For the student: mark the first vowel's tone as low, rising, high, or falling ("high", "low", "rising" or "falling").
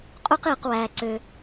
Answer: high